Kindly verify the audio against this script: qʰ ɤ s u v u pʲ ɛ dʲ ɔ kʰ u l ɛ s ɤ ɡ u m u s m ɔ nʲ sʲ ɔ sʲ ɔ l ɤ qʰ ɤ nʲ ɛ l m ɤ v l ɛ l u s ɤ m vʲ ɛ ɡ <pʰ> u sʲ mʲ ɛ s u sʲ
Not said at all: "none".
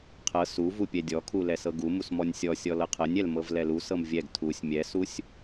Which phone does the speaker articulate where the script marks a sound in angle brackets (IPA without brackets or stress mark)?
tʰ